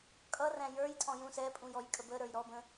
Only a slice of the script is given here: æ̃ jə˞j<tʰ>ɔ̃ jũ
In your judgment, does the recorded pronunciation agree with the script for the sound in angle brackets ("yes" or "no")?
no